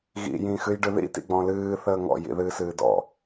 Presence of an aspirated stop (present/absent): absent